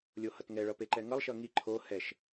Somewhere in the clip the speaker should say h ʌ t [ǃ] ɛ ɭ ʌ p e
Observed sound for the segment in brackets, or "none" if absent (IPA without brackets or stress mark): ŋ